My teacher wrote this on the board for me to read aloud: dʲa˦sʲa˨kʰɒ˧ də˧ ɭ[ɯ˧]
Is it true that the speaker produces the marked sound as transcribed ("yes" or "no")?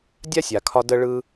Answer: yes